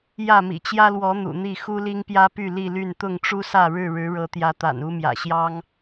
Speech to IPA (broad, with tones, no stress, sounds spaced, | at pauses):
j ä˥˨ m ḭ˨˩ t͡ɕ j ä˦ l w ɔ˨˦ n̪ ṵ˨˩ n̪ i˥˨ x u˦ l i˦ ŋ p j ä˦ p y˥˨ l i˥˨ l y˥˨ n t̪ ʊ˥˨ ŋ ʈ͡ʂ u˦ s ä˥˨ ɻ ɻ̩˥˨ ɻ ɻ̩˨˦ ɻ ɤ˨˦ t̪ j ä˨˦ t̪ a̰˨˩ n u˦ m j ä̰˨˩ ɕ j ɑ˦ ŋ